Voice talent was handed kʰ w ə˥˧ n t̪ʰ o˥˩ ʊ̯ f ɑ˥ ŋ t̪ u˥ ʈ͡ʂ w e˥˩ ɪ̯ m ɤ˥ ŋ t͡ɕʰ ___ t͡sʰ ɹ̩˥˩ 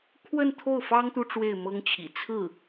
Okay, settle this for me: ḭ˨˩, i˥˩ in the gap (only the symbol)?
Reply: ḭ˨˩